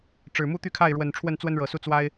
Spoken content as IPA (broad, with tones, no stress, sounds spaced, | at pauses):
ʈ͡ʂ ɻ̩˨˩ m u˦ t̪ y˥˨ kʰ a˥˨ ɪ̯ ɻ w ə˨˩ n ʈ͡ʂʰ w ə˥˨ n t͡s w ə˦ n ɻ ɤ˨˩ s u˥˨ t͡s w a˦ ɪ̯